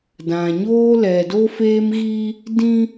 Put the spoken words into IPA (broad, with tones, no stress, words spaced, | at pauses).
dã˨ɲoː˦ lɛ˨do˦feː˦mɣiː˦ | dĩ˦